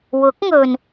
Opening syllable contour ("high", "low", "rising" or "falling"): rising